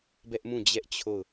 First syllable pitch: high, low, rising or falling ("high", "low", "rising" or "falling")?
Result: high